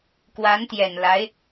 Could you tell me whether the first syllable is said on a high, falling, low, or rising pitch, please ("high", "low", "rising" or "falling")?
rising